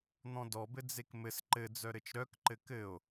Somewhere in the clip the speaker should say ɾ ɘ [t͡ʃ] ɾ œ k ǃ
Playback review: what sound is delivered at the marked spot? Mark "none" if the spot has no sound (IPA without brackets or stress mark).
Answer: t͡ʃ